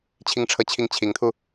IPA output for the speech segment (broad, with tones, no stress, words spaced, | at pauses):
t͡ɕʰi˥˧ŋʈ͡ʂʰɤ˥˧t͡ɕʰi˥˩ŋ t͡ɕʰi˧˥ŋt̪ʰu˧